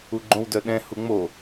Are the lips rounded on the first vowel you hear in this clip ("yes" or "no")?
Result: yes